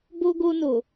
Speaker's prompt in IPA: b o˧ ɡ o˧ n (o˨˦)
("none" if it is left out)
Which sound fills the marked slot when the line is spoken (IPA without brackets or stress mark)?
o˨